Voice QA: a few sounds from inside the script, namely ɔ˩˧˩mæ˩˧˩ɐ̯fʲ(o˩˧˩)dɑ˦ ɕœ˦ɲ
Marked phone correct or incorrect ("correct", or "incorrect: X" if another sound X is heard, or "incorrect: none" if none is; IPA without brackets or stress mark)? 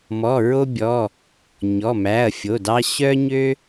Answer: correct